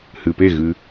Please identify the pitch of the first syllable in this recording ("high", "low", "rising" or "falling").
low